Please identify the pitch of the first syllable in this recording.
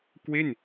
falling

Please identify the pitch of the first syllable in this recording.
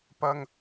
high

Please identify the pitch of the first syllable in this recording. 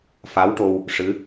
rising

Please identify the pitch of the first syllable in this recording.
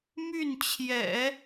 falling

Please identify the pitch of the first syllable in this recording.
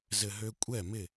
low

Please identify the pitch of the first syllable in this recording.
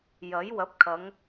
rising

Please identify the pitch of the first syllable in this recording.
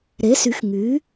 rising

